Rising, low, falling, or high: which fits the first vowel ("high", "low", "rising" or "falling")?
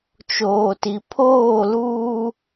low